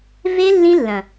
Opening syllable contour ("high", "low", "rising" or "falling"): high